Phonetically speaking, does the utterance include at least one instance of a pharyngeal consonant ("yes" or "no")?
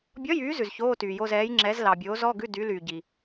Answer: no